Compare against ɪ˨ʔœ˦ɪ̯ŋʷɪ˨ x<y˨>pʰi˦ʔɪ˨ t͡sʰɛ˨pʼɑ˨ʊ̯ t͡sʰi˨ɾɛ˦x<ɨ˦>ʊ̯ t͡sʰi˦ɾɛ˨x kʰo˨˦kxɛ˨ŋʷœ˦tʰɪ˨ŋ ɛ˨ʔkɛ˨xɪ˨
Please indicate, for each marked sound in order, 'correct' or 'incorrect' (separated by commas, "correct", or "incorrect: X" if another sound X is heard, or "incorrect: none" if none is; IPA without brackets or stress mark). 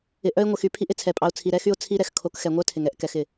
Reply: correct, incorrect: y˦